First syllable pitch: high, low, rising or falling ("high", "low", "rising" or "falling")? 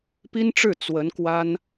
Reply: high